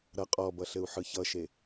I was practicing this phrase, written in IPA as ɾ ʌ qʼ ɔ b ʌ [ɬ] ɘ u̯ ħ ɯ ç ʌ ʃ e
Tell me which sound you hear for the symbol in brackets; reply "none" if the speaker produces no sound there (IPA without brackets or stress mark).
ɬ